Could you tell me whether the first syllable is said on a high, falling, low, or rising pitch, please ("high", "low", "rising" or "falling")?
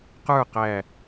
falling